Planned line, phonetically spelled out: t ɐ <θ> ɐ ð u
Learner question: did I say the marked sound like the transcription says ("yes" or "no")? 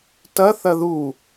yes